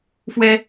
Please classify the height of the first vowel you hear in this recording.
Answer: mid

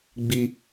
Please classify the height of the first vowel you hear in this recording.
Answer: high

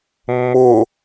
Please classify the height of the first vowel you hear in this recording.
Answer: high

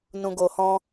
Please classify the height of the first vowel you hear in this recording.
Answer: high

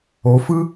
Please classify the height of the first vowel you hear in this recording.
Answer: mid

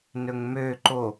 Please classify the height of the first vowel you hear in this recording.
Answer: mid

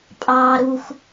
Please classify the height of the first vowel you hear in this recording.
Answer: low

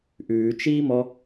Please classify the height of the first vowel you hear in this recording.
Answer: high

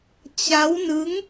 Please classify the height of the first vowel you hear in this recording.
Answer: low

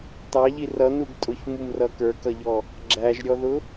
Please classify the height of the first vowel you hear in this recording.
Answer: low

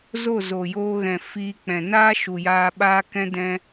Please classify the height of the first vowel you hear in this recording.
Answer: mid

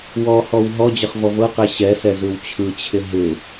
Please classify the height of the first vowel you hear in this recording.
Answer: mid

